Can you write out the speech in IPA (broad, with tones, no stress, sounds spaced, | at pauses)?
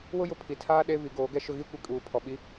w ʊ˦ j ʊ˨ pʰ i˨ tʰ aː˦ ɗ e˦ v i˨˦ ɡ oː˨˦ ɡ ɛ˦ ʃ ʊ˦ ɣ i˦ kʷ i˨ kʼ uː˨ pʰ ɔ˨ ɓ i˦